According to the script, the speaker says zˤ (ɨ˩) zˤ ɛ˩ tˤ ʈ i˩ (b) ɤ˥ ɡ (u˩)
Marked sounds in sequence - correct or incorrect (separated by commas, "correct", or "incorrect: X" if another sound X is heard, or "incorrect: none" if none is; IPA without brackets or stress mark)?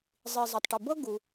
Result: incorrect: i˩, correct, correct